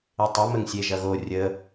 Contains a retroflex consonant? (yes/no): no